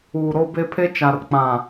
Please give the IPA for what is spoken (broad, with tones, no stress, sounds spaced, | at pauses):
uː˨ ɾ o˦ b e˦ pʰ e˦ t͡ʃ a˨ r k͡p ã˨